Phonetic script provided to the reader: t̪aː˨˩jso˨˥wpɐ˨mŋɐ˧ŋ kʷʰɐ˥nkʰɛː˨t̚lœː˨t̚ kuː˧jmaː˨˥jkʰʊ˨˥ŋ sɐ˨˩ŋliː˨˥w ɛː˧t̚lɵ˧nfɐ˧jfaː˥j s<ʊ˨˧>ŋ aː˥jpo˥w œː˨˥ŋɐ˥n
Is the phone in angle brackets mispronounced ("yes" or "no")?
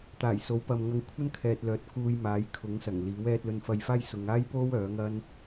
no